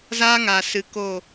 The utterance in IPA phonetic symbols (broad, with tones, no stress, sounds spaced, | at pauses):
z aː˦ ŋ a˨ s ɨ˨ k o˦˨